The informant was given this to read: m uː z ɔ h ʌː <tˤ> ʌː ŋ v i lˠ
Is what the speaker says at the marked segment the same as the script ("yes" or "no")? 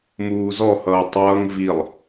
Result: yes